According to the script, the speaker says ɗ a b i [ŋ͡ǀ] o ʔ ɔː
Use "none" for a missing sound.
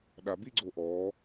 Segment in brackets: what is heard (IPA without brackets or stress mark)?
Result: ɡ͡ǀ